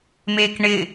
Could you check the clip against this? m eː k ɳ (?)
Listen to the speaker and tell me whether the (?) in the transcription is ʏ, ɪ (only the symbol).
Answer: ɪ